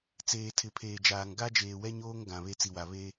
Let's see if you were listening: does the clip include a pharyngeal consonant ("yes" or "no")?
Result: no